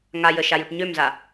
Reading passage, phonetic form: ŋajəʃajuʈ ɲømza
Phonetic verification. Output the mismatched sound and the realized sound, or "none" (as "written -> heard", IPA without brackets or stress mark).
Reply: none